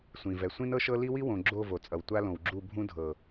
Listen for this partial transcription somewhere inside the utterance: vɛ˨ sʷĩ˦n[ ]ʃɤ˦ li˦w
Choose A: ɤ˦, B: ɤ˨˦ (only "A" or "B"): A